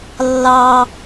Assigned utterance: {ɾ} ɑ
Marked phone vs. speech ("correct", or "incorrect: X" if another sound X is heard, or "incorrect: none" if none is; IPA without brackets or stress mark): incorrect: lː